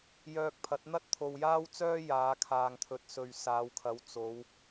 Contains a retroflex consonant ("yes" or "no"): no